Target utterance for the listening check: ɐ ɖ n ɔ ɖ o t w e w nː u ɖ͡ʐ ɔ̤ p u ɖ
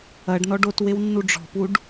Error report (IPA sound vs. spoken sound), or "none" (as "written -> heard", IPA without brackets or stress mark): none